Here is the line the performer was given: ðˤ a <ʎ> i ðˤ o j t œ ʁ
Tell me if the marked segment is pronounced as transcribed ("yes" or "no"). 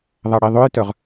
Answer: no